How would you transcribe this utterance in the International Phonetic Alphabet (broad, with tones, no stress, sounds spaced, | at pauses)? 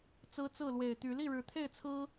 t͡s ɹ̩˦ t͡s ɹ̩˥˨ l w e˨˩ ɪ̯ t̪ y˨˦ l i˥˨ ɻ ɻ̩˨˩ t̪ʰ e˥˨ ɪ̯ t͡sʰ ɹ̩˦